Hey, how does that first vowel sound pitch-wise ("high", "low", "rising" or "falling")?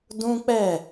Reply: high